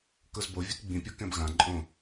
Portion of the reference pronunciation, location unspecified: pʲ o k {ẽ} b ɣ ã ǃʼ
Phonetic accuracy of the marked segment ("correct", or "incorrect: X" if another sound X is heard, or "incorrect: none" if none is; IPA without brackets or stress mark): incorrect: ɛ̃